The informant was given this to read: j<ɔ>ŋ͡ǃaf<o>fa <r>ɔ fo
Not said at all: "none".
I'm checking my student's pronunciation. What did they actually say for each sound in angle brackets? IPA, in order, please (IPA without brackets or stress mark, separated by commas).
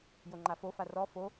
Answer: o, o, r